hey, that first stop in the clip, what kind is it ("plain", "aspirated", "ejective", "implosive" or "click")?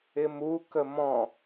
plain